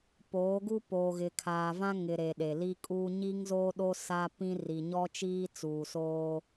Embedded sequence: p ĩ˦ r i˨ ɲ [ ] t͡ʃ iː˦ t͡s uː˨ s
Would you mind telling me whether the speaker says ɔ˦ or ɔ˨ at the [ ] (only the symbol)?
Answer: ɔ˦